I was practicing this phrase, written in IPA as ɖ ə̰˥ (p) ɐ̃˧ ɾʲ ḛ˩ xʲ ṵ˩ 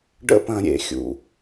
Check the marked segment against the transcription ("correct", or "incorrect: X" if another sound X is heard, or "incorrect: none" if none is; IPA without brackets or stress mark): correct